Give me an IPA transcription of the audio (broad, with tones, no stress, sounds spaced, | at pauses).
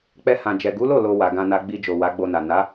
k͡p ɛ˧ h ã˨ d͡ʒ ɛ˨ ɡ u˨˦ l o˦˨ l o˧ w a˨ ɡ ã˧ n a˧ ɡ͡b i˧ d͡ʒ o˨ w a˨˦ ɡ͡b o˧ n a˨ n a˨˦